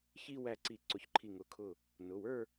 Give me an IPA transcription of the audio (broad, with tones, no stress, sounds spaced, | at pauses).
ç i˥˧ w æ˧˩ ǀ i˨˩˦ ǀ ʊ˨˩˦ ç ǃʰ i˧˩ ŋ ʊ˨˩˦ kʰ ʊ˧˩ | n ʊ˩˧˩ w ə˞˥˧